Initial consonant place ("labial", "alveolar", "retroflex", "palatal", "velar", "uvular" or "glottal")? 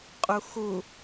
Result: uvular